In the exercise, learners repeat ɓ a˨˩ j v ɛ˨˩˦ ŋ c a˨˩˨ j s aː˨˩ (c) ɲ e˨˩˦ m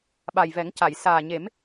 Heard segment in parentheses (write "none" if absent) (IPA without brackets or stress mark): none